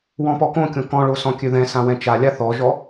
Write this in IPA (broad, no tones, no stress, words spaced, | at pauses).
wɔ̃pɔkõkʲõ kɔ̃ɭo sɔ̃kʲøðɛ̃sã wɛ̃t͡ʃalʲa θɔʒɔ